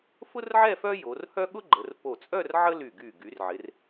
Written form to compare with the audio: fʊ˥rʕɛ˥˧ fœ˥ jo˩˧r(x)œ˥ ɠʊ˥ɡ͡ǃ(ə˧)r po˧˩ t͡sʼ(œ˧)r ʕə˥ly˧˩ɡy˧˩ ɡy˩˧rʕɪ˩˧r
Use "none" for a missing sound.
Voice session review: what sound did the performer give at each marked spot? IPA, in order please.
h, ə˩˧, œ˥˧

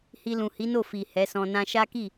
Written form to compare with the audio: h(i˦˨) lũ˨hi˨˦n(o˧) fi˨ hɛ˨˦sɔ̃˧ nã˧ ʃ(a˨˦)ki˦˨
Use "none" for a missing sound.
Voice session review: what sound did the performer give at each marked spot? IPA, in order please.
i˧, o˦˨, a˦

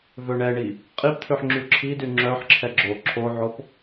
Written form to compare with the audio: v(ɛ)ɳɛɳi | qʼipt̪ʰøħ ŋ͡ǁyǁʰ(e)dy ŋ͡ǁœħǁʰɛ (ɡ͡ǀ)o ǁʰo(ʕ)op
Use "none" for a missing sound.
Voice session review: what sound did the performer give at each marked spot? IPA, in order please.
ø, i, ɡ͡ǁ, ʕ

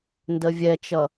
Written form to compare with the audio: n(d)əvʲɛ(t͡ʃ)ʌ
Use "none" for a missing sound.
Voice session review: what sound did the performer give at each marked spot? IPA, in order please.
d, t͡ʃ

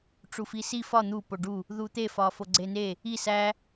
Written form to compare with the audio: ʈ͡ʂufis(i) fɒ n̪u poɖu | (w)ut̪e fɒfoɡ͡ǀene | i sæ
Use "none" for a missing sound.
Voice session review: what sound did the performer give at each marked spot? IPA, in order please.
i, ð

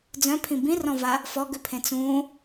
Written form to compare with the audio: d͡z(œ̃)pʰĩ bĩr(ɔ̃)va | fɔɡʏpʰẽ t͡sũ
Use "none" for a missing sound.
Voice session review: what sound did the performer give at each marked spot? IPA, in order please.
œ̃, ɔ̃

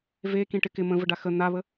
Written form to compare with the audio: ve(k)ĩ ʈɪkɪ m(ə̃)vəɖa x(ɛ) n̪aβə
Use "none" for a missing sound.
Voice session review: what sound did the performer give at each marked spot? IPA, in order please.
k, ə̃, ə

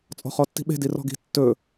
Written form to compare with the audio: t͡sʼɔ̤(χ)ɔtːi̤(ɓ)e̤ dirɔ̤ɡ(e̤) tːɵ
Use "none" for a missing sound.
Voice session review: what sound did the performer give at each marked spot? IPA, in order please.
χ, ɓ, i̤

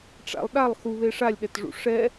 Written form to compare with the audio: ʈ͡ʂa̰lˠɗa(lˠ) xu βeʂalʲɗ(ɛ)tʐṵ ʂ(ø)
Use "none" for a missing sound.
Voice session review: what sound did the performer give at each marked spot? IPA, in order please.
lˠ, ɛ, ɛ

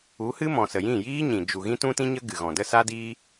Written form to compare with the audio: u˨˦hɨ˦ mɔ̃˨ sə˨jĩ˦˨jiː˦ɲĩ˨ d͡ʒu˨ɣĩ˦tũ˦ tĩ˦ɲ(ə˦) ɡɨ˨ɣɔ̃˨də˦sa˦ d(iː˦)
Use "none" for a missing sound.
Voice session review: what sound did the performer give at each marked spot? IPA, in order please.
ə˦, iː˦

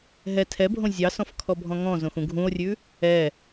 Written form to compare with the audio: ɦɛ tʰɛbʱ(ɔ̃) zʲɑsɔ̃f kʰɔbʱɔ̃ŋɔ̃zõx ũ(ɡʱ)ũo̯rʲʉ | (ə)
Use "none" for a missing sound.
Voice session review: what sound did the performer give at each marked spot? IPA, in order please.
õ, ɡʱ, ɛ

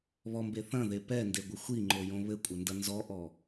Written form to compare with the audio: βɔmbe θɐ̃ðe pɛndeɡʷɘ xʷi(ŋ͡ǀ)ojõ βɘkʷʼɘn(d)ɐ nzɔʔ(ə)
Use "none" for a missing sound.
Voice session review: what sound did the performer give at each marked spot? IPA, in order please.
ŋ͡ǃ, d, ɔ

